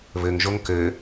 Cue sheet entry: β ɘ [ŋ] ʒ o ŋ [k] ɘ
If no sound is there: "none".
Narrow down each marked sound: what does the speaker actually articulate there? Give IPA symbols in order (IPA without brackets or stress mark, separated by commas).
ŋ, k